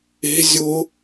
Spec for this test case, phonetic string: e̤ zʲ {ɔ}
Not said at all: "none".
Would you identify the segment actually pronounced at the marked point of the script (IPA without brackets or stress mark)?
ʊ